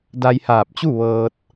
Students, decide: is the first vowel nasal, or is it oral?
oral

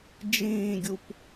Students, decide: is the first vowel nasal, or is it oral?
nasal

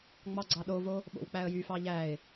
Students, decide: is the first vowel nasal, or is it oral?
oral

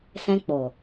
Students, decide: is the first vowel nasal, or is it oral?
nasal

